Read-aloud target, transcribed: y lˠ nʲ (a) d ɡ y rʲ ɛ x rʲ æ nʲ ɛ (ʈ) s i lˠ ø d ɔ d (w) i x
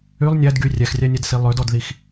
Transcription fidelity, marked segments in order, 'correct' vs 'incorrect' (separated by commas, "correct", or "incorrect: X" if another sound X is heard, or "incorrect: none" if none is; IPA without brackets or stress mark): incorrect: æ, incorrect: d, incorrect: ð